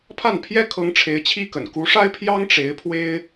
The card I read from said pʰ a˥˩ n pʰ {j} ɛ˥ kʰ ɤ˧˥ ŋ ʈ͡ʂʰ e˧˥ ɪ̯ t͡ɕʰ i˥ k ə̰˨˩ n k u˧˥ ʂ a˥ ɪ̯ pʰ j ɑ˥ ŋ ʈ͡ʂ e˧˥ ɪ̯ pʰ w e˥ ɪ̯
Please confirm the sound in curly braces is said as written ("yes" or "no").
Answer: yes